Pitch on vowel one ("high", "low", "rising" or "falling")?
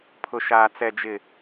low